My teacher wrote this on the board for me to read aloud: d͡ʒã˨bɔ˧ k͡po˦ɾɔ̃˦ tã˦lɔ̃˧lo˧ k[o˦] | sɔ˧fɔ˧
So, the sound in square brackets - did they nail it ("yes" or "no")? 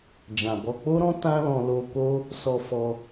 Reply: yes